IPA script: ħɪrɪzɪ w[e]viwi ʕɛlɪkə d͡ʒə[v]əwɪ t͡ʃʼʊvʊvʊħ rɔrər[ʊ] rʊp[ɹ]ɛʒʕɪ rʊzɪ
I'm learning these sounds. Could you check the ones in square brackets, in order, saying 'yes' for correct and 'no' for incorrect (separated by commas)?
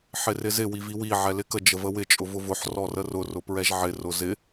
no, yes, yes, yes